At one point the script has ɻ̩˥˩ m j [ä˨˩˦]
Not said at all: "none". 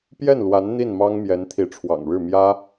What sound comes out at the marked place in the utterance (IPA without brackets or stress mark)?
ä˥